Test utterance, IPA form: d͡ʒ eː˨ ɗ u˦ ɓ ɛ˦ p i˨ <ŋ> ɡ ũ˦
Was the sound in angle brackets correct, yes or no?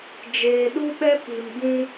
no